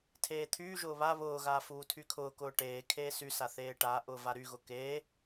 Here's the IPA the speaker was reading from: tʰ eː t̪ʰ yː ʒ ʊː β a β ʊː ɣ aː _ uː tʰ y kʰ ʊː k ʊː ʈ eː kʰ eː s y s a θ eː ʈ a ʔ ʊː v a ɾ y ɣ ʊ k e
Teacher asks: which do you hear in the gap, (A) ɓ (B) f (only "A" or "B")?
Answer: B